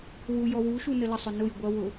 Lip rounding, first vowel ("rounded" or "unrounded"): rounded